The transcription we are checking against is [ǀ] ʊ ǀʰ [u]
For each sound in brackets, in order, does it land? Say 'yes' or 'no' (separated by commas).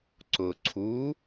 yes, yes